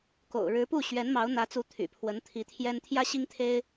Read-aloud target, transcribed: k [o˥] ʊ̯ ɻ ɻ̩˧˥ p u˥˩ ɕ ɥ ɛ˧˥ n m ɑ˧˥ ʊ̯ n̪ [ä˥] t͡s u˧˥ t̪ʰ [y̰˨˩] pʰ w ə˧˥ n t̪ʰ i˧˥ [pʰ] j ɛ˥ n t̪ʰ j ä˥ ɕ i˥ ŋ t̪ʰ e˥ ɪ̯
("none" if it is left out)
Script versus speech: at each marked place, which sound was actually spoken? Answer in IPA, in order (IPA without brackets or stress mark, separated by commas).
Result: o̰˨˩, ä˧˥, y̰˨˩, t̪ʰ